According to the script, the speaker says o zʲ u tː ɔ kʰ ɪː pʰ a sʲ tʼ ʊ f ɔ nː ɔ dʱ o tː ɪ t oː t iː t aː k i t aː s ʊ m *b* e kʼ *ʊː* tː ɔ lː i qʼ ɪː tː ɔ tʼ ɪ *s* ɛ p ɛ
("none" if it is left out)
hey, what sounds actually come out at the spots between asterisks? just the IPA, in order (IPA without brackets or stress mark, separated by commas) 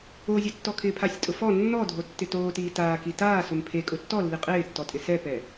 pʰ, ʊ, s